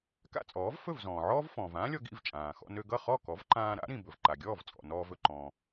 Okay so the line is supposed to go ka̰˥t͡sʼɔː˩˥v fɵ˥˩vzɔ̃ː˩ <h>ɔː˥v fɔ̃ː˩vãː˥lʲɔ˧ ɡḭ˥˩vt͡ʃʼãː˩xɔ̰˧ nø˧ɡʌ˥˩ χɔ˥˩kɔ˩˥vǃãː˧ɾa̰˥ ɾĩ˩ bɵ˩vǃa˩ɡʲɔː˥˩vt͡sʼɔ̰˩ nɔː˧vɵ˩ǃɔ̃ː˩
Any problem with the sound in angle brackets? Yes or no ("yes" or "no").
yes